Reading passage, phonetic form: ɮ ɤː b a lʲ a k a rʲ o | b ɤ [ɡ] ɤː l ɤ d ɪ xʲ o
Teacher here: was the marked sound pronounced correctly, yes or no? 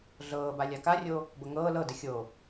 no